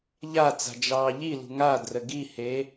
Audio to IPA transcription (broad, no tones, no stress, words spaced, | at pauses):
ʎa t͡sa̤d͡ʒɑːʎilṳ ŋa drəɡihe